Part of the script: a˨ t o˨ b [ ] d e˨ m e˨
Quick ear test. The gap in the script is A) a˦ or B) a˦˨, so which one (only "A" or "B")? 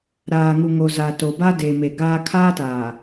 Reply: A